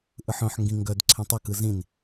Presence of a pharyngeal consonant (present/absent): present